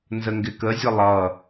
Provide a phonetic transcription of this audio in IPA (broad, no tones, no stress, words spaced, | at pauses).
nzəŋɡɪkəzʲə lˠʌ